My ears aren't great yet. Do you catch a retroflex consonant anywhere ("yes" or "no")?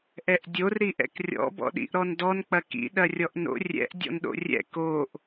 no